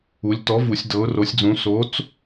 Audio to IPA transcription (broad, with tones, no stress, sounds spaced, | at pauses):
u˩˧ lʲ t ɔ˨˥ v u˩˧ sʲ d ɤ˨˥ ʊ̯ r o˨˥ sʲ d͡z ũ˨˥ s o˨˥ t͡s